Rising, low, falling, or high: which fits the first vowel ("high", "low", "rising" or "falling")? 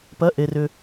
rising